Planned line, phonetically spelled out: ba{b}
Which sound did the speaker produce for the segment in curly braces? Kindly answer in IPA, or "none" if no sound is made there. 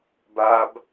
b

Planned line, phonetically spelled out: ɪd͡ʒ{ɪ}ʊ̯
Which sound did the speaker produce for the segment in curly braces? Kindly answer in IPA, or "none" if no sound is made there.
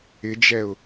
ɛ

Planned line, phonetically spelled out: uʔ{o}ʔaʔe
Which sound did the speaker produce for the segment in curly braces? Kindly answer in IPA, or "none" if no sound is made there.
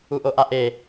o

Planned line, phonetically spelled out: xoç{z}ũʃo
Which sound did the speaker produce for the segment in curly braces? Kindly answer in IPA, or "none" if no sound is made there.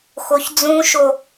d͡z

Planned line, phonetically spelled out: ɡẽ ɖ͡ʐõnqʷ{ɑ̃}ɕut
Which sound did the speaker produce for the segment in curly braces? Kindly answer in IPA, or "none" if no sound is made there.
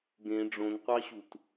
ɑ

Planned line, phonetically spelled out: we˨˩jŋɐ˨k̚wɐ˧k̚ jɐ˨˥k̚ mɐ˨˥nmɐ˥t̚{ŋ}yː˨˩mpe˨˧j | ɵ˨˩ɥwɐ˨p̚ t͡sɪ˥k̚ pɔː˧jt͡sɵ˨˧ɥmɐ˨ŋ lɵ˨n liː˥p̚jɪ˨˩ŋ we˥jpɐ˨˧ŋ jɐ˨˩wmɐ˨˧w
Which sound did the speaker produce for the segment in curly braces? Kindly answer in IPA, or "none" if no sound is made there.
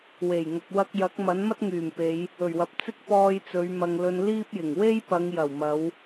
ŋ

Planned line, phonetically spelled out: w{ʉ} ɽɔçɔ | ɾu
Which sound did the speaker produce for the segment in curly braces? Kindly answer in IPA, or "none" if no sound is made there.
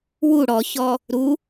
u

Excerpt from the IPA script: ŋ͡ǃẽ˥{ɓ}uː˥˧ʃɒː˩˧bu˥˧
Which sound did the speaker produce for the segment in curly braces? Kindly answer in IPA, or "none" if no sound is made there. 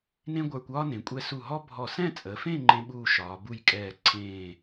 ɓ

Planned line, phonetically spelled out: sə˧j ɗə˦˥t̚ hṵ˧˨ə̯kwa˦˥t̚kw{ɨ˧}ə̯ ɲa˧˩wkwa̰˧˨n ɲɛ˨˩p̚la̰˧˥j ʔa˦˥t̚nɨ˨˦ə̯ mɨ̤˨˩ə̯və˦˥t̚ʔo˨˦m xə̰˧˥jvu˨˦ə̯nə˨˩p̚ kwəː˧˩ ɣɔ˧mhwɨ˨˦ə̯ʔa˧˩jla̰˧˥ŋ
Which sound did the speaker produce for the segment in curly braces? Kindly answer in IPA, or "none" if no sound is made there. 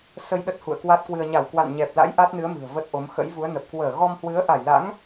ɨ˧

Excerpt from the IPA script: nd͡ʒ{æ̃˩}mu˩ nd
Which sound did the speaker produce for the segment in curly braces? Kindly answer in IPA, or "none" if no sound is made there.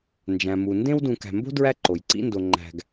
æ̃˩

